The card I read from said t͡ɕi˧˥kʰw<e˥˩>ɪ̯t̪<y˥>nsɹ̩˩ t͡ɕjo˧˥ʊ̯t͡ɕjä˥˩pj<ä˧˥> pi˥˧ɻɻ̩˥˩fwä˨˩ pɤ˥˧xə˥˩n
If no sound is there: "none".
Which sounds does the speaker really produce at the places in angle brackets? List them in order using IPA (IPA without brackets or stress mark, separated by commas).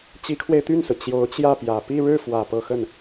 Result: e˧, y˥˩, ä˨˩